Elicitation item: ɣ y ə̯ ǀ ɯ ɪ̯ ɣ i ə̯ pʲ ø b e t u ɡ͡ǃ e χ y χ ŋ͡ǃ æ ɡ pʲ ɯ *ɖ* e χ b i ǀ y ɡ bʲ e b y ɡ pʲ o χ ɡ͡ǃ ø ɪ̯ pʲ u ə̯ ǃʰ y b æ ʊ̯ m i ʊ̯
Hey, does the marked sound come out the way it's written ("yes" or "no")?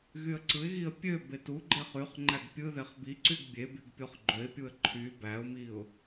no